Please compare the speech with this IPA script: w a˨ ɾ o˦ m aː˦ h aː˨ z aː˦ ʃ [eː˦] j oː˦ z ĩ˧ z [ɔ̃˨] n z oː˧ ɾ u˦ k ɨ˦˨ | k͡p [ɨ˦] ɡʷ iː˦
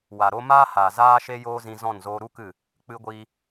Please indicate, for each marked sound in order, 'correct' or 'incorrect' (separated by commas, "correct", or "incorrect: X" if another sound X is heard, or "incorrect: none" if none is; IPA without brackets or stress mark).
incorrect: e˦, incorrect: ɔ̃˦˨, correct